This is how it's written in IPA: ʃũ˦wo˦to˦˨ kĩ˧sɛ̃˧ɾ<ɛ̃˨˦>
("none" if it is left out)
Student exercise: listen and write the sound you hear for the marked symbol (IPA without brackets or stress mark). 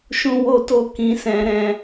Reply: ɛ̃˧